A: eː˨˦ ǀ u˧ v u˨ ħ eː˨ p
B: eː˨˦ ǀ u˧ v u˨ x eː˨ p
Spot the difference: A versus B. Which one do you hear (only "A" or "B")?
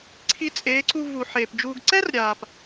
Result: A